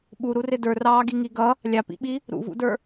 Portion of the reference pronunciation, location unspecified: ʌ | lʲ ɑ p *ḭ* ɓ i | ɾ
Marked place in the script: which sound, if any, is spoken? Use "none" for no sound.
ḭ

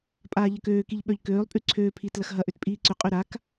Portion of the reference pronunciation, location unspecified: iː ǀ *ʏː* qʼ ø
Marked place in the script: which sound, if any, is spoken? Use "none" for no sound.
ʏ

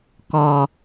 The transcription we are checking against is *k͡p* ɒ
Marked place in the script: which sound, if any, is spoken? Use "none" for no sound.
k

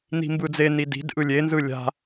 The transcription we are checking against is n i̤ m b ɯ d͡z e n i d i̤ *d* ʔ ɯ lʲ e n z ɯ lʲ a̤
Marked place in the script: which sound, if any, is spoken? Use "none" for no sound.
d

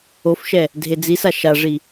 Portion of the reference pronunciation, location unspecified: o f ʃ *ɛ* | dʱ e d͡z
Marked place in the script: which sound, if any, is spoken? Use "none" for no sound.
ɛ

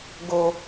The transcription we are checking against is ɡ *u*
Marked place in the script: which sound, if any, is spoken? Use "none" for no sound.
o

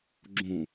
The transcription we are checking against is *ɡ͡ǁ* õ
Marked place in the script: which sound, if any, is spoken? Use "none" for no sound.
ɡ͡ǁ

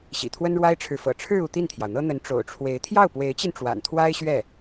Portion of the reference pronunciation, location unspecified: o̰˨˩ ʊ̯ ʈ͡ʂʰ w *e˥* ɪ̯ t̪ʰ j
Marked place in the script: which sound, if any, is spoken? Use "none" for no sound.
e˧˥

